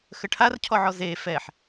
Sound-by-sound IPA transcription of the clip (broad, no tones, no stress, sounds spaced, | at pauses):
x ə ʈʰ a r cʰ ɔ ʕ ɔ z e f ɛ ħ